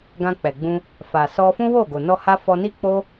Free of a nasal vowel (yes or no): no